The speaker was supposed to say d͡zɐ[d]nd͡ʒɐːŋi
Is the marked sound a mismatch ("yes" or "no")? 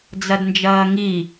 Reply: no